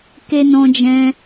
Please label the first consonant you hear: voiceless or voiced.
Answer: voiceless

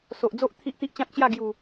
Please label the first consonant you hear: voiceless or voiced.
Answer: voiceless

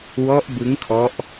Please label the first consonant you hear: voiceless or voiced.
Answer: voiced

